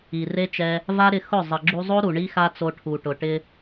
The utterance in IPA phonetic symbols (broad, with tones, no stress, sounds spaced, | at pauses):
i˨ r e˦ t͡ʃ ɛ˧ | v a˦ ɾ ɪ˧ x ʊ˦˨ zˤ ɪ˨ ɡ͡ǁ u˧ zˤ o˦ ɾ u˨ ɳ i˦ x a˦ t͡s o˧ ʈʰ u˨ ʈ ʊ˨ ʈ ɪ˧